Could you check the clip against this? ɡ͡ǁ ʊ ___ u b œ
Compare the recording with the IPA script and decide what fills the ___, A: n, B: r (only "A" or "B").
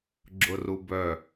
B